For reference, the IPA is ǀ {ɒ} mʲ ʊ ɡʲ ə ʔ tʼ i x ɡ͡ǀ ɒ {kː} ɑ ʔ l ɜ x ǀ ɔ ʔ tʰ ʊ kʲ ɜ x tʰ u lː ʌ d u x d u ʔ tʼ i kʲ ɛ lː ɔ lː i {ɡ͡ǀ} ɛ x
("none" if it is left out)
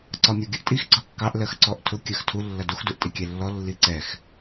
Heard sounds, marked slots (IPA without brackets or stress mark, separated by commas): ɒ, kː, ǀ